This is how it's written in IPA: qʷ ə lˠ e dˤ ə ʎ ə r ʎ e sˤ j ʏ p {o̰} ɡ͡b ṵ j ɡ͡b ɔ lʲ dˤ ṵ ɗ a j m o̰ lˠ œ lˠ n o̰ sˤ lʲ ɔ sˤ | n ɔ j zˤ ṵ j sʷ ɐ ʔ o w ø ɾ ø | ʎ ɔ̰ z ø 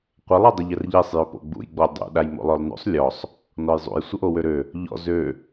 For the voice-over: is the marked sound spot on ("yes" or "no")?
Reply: yes